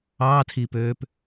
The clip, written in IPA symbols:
ɑ tʰ i p øː p

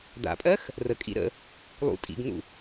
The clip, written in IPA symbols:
d̪ a̰ pʼ ɜ x | r ə kʼ ḭ ɾ ə̰ | lˠ ṵ tʼ ḭ ɡ n̪ ṵ

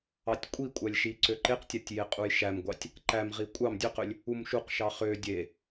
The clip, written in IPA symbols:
ɑ tʲ kʷʼ i kʷʼ æ lʲ ʃ i ǀ ø ǃ e q tʲ æ tʲ j e qʼ u j ʃ æ m ɡʷ ɑ tʲ | ǃ æ m ʁ i kʷʼ ɑ m dʲ ø q ø lʲ | u m ʃ u q ʃ ɑ χ ø dʲ e

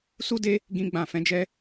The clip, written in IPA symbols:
s u˦ d e˦ | ɡ ĩ˦ ɡ͡b ã˦˨ f ɛ̃˧ d͡ʒ ɛ˧

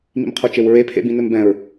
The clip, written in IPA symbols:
m ḭ m qʰ o t͡ʃ e w ɹ e pʰ ḛ b ĩ n ɘ m b ɛ̃ ɹ

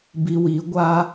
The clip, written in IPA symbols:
b i˧ w i˨˦ ɡʷ a˦

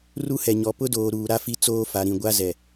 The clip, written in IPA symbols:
r u˦ h ɛ˨ ɲ ɔ˨ p ʊ˦ d oː˨ ɾ uː˨ ɾ a˦ f i˦ t͡s oː˦ f a˨ ɾ ĩ˨ ɡʷ a˦ z ɛ˨

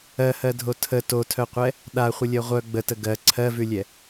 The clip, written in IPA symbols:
ɜ h ɜ dʱ o tʰ ə t o tʰ œ qʷ ɛ | ɗ a χʷ ə lʲ ɜ ʁʷ œ ɡ͡b ə t ə ɡ ɜ ǀʰ ɜ v ʉ lʲ ɛ

